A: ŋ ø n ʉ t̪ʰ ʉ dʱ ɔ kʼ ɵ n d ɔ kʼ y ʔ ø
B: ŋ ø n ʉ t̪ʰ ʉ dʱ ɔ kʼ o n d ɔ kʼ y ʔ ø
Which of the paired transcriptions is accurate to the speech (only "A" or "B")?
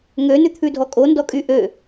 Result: B